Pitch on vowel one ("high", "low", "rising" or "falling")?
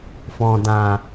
low